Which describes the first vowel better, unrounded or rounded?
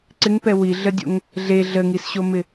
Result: unrounded